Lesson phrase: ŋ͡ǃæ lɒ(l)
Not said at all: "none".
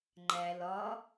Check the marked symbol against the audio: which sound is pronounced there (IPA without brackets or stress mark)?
none